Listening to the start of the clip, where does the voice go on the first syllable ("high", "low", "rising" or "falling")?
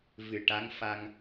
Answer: low